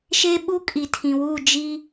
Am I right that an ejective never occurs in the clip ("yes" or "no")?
no